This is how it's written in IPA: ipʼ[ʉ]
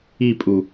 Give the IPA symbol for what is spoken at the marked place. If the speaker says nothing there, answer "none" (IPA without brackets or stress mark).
u